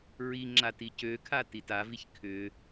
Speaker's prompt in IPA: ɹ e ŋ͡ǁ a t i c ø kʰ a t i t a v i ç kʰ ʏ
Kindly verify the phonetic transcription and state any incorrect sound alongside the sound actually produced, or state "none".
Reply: e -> i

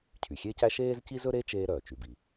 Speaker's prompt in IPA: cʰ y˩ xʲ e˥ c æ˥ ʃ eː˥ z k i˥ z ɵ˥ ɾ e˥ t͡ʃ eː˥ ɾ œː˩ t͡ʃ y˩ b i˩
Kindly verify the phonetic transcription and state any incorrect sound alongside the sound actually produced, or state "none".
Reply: k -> c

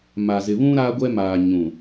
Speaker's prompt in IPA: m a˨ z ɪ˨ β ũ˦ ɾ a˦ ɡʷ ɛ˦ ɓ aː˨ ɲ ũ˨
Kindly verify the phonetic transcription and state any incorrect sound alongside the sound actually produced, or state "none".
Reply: ɓ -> m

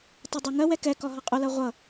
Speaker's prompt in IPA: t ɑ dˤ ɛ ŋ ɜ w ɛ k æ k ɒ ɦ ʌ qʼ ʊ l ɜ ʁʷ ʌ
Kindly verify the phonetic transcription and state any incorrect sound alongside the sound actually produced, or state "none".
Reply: æ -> ɛ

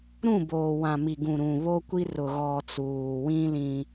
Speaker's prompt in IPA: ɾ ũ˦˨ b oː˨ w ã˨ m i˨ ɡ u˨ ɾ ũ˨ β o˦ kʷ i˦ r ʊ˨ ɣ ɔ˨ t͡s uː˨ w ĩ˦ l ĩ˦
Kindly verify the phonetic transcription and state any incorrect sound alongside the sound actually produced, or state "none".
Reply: u˨ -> ũ˨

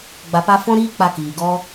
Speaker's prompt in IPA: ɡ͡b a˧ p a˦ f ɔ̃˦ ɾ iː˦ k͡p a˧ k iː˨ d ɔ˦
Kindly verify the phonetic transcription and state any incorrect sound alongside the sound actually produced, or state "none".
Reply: d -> ɡ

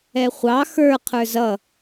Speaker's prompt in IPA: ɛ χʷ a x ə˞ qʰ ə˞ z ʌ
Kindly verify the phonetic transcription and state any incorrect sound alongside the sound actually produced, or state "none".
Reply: a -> ɑ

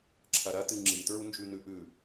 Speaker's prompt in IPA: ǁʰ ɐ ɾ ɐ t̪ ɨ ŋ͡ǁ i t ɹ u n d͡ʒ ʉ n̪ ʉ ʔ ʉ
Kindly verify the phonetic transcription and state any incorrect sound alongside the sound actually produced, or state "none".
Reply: none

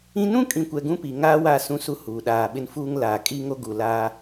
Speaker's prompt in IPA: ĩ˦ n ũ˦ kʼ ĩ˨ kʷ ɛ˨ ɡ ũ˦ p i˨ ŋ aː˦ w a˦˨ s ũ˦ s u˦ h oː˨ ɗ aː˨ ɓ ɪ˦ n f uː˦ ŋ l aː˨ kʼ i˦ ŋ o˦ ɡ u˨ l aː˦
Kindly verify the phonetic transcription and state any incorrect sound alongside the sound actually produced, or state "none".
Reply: oː˨ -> uː˨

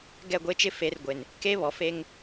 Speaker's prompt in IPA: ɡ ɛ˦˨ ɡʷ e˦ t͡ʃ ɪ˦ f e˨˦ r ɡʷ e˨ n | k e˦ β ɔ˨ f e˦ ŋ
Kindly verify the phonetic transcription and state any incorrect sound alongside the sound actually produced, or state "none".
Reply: none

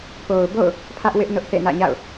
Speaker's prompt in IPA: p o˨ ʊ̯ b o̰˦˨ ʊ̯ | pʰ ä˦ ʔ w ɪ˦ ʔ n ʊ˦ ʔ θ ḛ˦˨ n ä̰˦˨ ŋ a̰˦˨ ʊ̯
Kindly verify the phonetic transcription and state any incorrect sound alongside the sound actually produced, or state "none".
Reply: ŋ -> ɲ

